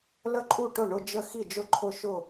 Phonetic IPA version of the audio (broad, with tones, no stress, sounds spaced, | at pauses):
l ə˥˧ ǃʼ u˥˩ ʈ ʊ˥˩ ɳ ʊ˥˧ d͡ʒ ə˥˧ x i˥˩ d͡ʒ ʊ˥˧ ǃʰ ʊ˥˧ ʃ ʊ˥˩